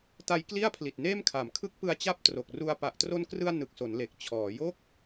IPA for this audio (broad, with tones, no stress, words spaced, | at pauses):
ta˦˥jkli˥˩a̯pʰli˨˩t̚ neː˥˩mkʰa˩˦m kʰɯ˦˥k̚pɯ˧a̯ t͡ɕa˥˩p̚tro˨˩k̚ru˧a̯ pa˨˩ʔtro˧nkrɯ˧a̯ nɯ˨˩k̚so˩˦nle˨˩k̚ t͡ɕʰɔː˩˦ jo˥˩k̚